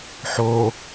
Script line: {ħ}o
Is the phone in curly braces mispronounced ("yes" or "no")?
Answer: no